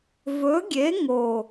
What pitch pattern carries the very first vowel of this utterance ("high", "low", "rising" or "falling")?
rising